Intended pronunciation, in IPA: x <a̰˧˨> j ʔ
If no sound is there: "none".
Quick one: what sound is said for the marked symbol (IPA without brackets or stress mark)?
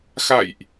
a̰˧˨